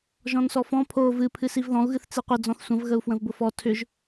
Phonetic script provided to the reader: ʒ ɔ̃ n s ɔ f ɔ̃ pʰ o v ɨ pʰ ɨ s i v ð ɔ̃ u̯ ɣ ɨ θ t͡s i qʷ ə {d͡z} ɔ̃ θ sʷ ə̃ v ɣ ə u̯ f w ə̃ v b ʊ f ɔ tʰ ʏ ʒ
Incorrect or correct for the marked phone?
correct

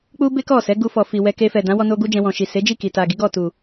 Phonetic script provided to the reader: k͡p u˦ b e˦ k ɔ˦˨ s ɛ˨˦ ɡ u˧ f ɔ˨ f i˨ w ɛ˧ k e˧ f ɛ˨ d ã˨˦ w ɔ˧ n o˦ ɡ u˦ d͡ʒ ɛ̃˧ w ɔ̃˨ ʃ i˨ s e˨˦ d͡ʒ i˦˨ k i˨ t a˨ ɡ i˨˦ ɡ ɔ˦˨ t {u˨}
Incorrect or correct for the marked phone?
correct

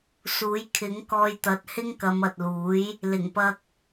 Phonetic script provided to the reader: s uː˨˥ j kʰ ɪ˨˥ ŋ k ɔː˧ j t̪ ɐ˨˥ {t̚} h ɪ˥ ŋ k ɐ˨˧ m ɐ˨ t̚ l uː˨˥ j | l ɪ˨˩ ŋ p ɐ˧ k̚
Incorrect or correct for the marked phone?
correct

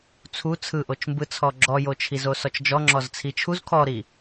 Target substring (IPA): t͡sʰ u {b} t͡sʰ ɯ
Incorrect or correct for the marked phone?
incorrect: none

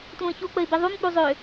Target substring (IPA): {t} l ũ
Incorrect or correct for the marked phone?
correct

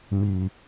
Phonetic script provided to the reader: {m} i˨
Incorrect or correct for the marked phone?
correct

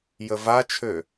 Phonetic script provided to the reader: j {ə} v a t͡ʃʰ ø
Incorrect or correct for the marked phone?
correct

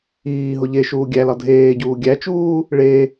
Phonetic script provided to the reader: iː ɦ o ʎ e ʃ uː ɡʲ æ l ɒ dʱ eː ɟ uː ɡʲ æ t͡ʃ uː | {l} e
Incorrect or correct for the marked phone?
incorrect: ɭ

